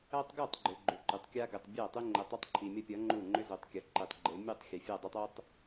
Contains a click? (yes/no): yes